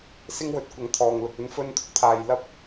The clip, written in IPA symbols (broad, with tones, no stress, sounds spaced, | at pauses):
s ɪ˥ ŋ w ɵ˨˥ t̚ kʷ ɐ˨˥ ŋ t̪ʰ ɔː˨ ŋ l ʊ˨ k̚ ɵ˥ n f ɵ˧ n t̪ʰ ʊ˥ k̚ t̪ʰ aː˨ j l ɐ˥ p̚